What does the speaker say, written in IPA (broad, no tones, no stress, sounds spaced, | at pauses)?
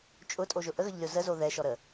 t͡ʃʼ ʊ tʼ o ʒ ʊ ʔ ə ɣ ə ʎ lʲ o z ə z o ð ɛ ʃ ɔ ɾ ə